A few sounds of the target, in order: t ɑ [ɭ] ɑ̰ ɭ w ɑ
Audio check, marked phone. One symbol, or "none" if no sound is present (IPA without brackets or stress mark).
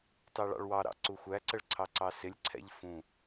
ɭ